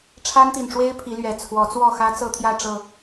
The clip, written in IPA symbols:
ʈ͡ʂʰa˦nt̪i˨˩nʈ͡ʂwe˦ɪ̯ pʰi˨˦lɥɛ˨˩ t͡sʰwɔ˨˦t͡swɔ˥˨xä˦ t͡sɤ˥˨t̪ʰjä˥˨ʈ͡ʂɤ˨˩

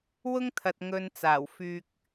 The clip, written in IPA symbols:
wʊ˥ŋt̪ʰɐ˨t̚ ŋɵ˧nt͡saː˨˩w fyː˧k̚

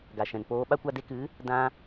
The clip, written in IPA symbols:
ɡa˨ʃɛ̃˨npoː˧ɓa˦ kʷa˧de˧kɨ˨˦ | dã˧

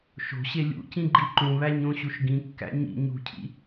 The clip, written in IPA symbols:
ʃo̤ɕe lʲṵcĩɡ͡ǃi ǃũβæɲõɕuʃ ɡĩkːæ̰ ɲḭ ɲṳcʰḭ

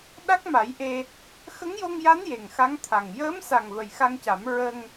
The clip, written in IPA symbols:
ɗa˦˥k̚ma˨˩˦jʔe˧ | xə˧˥ŋjo˧ŋja˧˥n je˨˩ŋxa˧˥ŋt̪ʰa˨˩ŋ jəː˧˥msa˨˩ŋ və˨˩jxa˧ŋca˨˩˦m ɹə˧ŋ

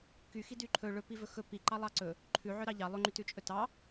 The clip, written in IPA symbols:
ky xidyǃʰɵ ɭɵ pivɵxɵ pi ǃɑlˠɑǀɵ | ǃʰʉʕœ ɾɑʎɑ lˠɵŋ͡ǃytʉt͡ʃʼɵ tɑ

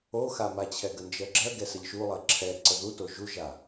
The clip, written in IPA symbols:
oxamat͡ɕʰɛ ɡənd͡ʒɜɡ͡ǁɜɡɛ səʎʃulˠɜ ǁʰɛ ǀəðuto ʒuʒa

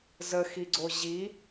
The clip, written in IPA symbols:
zəxiɡ͡ǀo ʑi

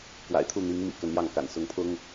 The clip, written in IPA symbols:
kwa̰˨˩ɪ̯t̪ʰu˥˩ n̪i˧˥ŋmḭ˨˩ kə˧˥njɑ˥˩ŋka̰˨˩n sʊ˧˥ŋpʰʊ˥ŋ

